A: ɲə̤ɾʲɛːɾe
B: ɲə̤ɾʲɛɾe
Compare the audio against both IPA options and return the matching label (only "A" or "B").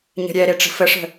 B